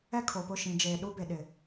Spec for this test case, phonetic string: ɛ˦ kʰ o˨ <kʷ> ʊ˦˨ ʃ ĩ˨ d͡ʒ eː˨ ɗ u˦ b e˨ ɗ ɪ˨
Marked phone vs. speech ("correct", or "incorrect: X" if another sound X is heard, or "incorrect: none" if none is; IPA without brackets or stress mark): incorrect: p